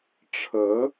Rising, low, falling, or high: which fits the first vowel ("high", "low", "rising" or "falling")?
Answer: rising